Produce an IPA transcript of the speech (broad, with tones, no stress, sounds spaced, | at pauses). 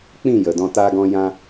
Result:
k͡p ĩ˦˨ j ə˨ d ɔ̃˧ t a˧ ɡ ɔ̃˧ j ã˧